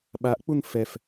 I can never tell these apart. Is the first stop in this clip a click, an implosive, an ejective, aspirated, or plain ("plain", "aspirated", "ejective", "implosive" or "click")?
implosive